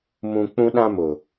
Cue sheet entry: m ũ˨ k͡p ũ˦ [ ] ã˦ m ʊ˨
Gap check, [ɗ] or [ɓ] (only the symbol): ɗ